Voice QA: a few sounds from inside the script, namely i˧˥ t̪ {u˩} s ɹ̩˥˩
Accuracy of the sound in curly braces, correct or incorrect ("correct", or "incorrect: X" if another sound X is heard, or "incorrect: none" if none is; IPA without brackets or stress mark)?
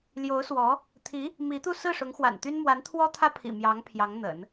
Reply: incorrect: u˥˧